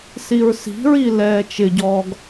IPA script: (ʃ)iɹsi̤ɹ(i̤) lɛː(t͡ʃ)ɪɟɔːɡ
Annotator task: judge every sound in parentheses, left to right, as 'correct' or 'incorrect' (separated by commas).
incorrect, incorrect, correct